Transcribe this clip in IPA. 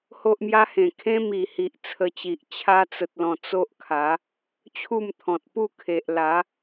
h o˦ ʔ m j a˦ h ẽ˨˩ kʰ ẽ˦ m i˨˩ h i˨ ʔ t͡sʰ ə˧ t͡ɕ i˨ ʔ t͡ɕʰ a˧ t͡s ə˨ t̚ l ɔ̃˨˩ t͡s o˦ ʔ kʰ a˨˦ | t͡ɕʰ u˥˧ m t̪ʰ ɔ̃˨ t̚ p u˥˧ kʰ e˨ ʔ l a˨˦

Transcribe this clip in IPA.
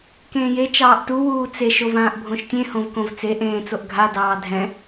k ẽː j e t͡ʃ ɑː ʔ t u w uː t͡s e ʃ o v ãː ʔ bʱ õ ʃ tʲ ẽ h õ v k õ v t͡s e ʔ ẽː t͡s o ʔ ɡʱ a d ɑː dʱ ɛ̃

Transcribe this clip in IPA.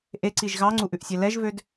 ʔ e ǀ i ʒ ɣ ɑ ŋ͡ǀ u ʔ ʉ ʔ sʲ ɛ l ɛ ʒ v ø d

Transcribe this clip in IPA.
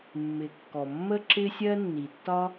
mː ɪ˩ kː ɔ˩ mː ə˥ ǁ ɪ˥ sʲ ɜ˥ nː i˩ tː ɒ˥

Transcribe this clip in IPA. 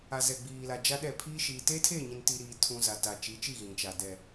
a˨ z ɛ˨ ɡ͡b iː˨ l a˨ d͡ʒ a˦ ɗ ɛ˦˨ pʰ iː˦ ʃ iː˨ t eː˦ tʰ eː˦˨ ɲ ĩ˨ n t i˨ ɾ iː˨ tʰ ũ˨ z a˨ t a˨ t͡ʃ i˨˦ t͡ʃ i˦˨ ɣ ĩ˨ t͡ʃ a˨ d ɛ˨

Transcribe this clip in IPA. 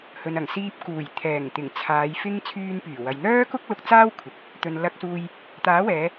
h ɵ˨ n ɐ˨˩ ŋ s iː˧ p̚ k uː˨˩ j t̪ʰ ɛː˨˩ ŋ t̪ ɪ˨˩ ŋ t͡sʰ aː˨˧ j f ɪ˥ ŋ t͡sʰ yː˧ n p yː˨˩ w ɐ˨ j n̪ œː˥ k ʊ˥ k̚ l ʊ˧ k̚ t͡s aː˥ w kʷʰ ɪ˨ k̚ | t̪ ɵ˨ n l ɐ˧ k̚ s uː˧ j | t̪ aː˨˥ w ɛː˨˧

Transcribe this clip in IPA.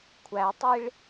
kʷʰ æ tˤ i ɭ

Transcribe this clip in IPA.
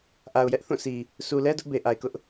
ʔ a˨ ʊ̯ j ɛ˦ ʔ θ ũ˦˨ s i˨ | s u˨ l ɛ˦ d ʊ˦ ʔ b e˨ ʔ a˨ ɪ̯ k ʊ˦ ʔ

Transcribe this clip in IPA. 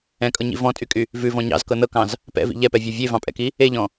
ɛ̃ kʼ ɤ ɲ ḭ v ɔ̃ tʼ y kʼ y | v ʉ v ɔ̃ ɲ ɑ̰ z k ɤ n ɤ k ɑ̃ z | p ɛ̰ v ḭ ʎ ɛ p ɛ vʲ ɔ vʲ e v ɑ̃ pʼ ɛ̰ k i | e ʎ ɔ̃

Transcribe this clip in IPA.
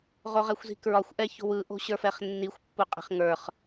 ʁ o ʁ ɛ xʷ z i̤ k ɹ ɒ xʷ ʔ ɛ ç o̤ w ɯ ʔ o̤ ɕ ə˞ f ɛ χ nː i xʷ pː u qʼ e̤ χ ŋ ə˞ χ

